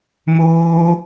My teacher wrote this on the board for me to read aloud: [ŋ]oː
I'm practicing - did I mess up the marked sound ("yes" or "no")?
yes